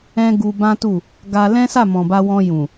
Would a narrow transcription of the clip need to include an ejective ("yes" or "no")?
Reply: no